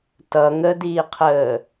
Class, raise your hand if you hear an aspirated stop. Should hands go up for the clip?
yes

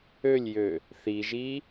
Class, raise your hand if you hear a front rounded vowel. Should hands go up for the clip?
yes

